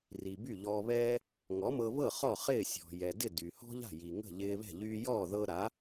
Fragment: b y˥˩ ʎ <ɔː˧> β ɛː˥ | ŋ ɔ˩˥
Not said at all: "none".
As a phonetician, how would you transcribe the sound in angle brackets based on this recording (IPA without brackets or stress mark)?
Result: ɔː˧